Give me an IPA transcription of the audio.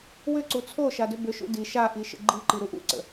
w ʏ ǀ u t͡sʰ o ʃ a d ʏ b ʏ ʃ ṵ d i ʃ a ʔ i ʃ ə̰ ɡ͡ǃ i ǃ i ɾ u ʔ ṵ ǀ ə̰

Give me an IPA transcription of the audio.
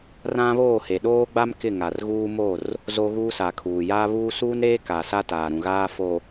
r ã˦ β oː˦˨ h e˨ ɗ oː˦ ɡ͡b a˦ m k ɪ˦˨ ŋ a˨ r ɣ uː˦ m o˦˨ r | z o˦ ɣ uː˦ s a˨ kʰ uː˨ j aː˦ β uː˦ s uː˦ n ɾ eː˦ k a˨ s a˦ t aː˨ ɾ ũ˨ ɣ aː˦ f o˨

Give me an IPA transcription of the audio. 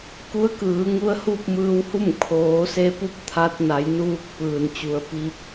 k u˧˥ ə̯ k ɯː˩˧ ŋ u˧˥ ə̯ h u˥˨ p̚ m ɯː˧ w h u˥˨ m kʰ oː˩˧ s e˧ p u˧˥ p̚ t̪ʰ a˧ t̚ n a˩˧ j n uː˧ k̚ p ɯː˩ n t͡ɕ u˩˧ ə̯ p i˧ p̚

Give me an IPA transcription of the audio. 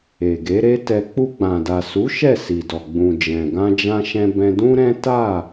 e˨ ɡ e˨˦ ɾ e˦ t ɛ˧ k͡p u˧ ɡ͡b ã˨ d a˨ s u˨˦ ʃ ɛ˦˨ s i˨ d ɔ˨ ɡ͡b ũ˨ d͡ʒ ɛ̃˨ ɡ ã˧ d͡ʒ ã˧ ʃ ɛ̃˧ b ɛ̃˧ d ũ˦ ɾ ɛ̃˦ t a˦˨

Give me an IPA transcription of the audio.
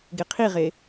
ɡ e qʰ i ʁ e

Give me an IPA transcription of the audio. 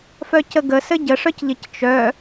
f œ c ə ɡ ə s ɘ ɟ ə ʂ œ c ʎ ɘ c t͡ʃ œ

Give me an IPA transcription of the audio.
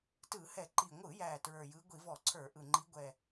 t ɯ˧˩˧ h ɛ˧˩˧ ǃ i˨˩ ŋʷ ɯ˧˩˧ j æ˨˩ t ɹ ə˞˨˩ j ɯ˨˦ ɡʷ i˧˩˧ v ɔ˧˩˧ ǀʰ ə˞˧˩˧ ʔ ɯ˨˩ ŋ͡ǃ i˨˦ ɡʷ ɛ˨˩

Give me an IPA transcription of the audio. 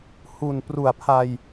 h u˨˩ n p r u˨˩ a̯ pʰ a˧ j

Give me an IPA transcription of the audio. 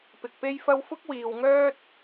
p ɪ˨ k̚ p e˥ j f ɐ˥ w f ʊ˥ k̚ w iː˨ w ŋ œː˥ t̚

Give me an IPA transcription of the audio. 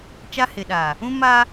t͡ʃ a˦ h ɪ˨ ɗ aː˨ | ũ˦ m aː˦

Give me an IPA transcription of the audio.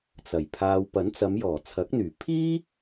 t͡s ɐ˨˩ j pʰ aː˨ w p ɐ˨˥ n t͡s ɐ˨˧ m j ɔː˨˩ t͡sʰ ɐ˨˥ k̚ n̪ yː˨˩ pʰ iː˥

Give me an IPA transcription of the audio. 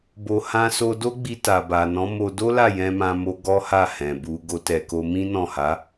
b o˨ h ã˧ s o˧ d o˦ ɡ͡b i˧ t a˨ b a˨ n ɔ̃˨˦ m o˧ d o˦ l a˦˨ j ɛ̃˧ m ã˧ m o˧ ɡ ɔ˦ h a˦˨ h ɛ̃˨ b u˧ ɡ o˧ t ɛ˨ k o˧ m ĩ˦ n ɔ̃˦˨ h a˨˦

